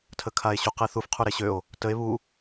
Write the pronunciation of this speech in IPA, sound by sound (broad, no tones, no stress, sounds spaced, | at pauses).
tʰ ə kʰ a e̯ ɕ u q e θ u f qʰ u ɾ e ɕ ø o̯ | t ə e̯ β u